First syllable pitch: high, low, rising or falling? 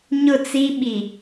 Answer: falling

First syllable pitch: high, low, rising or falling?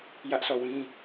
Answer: high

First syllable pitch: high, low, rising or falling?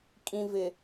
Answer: low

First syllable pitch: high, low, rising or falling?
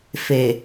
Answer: low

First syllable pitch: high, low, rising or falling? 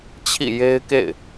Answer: falling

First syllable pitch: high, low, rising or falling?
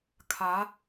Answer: rising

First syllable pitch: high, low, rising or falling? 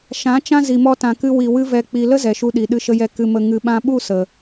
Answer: rising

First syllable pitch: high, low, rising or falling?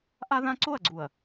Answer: high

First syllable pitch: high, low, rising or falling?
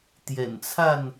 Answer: low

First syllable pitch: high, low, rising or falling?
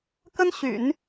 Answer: high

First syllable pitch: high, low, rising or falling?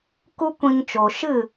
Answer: high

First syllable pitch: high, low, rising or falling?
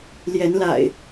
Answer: rising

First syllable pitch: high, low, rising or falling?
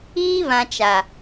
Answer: high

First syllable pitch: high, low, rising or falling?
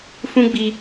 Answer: high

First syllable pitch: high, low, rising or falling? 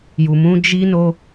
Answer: low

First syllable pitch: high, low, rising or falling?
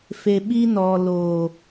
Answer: low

